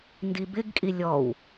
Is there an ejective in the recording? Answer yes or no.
yes